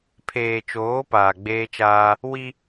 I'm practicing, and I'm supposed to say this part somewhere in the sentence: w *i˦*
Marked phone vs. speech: correct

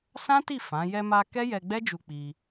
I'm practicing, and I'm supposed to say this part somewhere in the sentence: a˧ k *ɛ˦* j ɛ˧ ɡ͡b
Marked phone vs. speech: correct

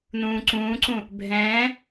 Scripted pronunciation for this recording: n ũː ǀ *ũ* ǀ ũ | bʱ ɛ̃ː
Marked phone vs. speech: incorrect: ũː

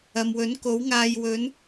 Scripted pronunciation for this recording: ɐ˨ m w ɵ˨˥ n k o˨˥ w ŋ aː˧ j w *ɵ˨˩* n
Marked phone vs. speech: incorrect: ɵ˨˥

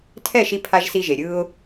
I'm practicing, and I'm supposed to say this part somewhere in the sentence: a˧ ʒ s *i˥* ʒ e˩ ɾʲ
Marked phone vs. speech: incorrect: i˧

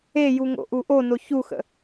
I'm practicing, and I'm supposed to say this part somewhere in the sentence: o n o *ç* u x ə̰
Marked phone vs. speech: correct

